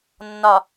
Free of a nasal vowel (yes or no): yes